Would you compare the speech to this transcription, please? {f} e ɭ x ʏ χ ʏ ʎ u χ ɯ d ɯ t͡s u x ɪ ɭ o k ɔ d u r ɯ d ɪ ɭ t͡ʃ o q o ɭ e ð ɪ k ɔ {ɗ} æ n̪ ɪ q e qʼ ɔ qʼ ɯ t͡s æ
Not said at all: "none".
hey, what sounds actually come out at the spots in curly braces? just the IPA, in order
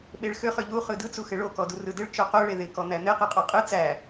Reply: ɓ, n̪

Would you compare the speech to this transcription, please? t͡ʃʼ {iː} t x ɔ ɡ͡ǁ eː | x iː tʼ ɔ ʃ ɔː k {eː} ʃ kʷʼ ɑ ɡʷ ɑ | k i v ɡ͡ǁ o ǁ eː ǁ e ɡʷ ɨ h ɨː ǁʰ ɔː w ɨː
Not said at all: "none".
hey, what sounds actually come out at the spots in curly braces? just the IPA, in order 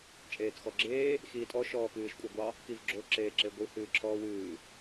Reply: eː, ɨː

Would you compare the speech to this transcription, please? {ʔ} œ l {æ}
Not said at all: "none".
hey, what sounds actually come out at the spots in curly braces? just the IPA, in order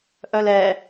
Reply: ʔ, ɛ

